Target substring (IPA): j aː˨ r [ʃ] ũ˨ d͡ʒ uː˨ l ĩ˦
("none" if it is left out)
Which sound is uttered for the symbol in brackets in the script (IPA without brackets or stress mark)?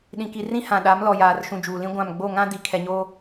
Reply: ʃ